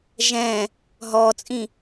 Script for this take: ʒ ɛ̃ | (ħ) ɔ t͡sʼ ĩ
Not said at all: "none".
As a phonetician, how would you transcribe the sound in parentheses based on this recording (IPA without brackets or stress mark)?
ɦ